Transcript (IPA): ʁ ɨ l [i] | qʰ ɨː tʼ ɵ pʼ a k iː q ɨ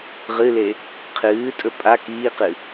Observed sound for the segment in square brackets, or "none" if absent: e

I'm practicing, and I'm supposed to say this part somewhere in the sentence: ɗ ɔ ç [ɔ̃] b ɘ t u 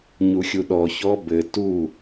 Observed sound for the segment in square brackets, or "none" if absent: ɔ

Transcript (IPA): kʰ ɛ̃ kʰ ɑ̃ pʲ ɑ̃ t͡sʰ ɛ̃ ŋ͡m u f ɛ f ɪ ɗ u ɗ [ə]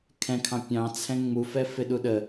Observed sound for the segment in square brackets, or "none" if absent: ə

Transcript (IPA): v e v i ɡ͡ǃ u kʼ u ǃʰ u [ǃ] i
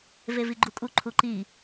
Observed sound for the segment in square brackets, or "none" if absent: ǃ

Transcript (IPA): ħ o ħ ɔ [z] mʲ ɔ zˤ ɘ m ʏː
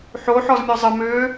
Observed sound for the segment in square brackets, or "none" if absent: z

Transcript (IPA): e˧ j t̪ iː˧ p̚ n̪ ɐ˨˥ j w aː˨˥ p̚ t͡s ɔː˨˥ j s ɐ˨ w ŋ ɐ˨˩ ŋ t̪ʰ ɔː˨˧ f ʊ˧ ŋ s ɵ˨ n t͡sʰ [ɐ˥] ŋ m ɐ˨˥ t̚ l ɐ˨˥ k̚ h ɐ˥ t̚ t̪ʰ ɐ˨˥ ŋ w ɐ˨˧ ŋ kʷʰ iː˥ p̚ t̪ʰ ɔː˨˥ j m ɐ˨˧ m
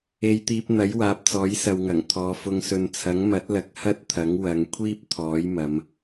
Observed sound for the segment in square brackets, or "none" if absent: ɐ˨˥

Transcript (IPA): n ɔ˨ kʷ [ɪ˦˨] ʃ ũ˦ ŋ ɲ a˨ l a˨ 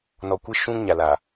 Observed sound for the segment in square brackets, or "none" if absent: ɪ˦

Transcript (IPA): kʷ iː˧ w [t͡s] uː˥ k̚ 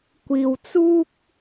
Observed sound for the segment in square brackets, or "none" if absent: t͡s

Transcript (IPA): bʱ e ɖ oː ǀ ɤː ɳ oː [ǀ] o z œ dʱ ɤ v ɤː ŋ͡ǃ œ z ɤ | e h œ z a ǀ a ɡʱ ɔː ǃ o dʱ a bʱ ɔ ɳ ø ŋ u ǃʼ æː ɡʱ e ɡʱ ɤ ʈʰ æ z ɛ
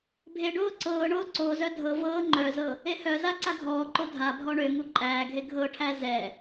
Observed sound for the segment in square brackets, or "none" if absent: ǀ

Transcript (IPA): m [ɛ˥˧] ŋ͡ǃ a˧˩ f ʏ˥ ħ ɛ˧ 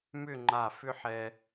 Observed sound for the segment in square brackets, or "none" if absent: ʏ˥˧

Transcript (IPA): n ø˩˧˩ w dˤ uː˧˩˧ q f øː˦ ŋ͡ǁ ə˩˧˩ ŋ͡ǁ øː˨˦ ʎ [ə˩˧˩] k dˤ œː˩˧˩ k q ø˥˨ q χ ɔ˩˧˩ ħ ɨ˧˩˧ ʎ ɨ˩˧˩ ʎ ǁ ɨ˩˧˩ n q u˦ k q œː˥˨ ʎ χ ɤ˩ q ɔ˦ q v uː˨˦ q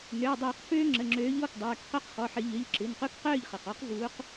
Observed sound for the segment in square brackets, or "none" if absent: ɔ˩˧˩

